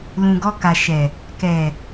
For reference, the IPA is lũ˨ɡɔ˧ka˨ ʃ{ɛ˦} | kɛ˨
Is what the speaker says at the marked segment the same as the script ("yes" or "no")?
no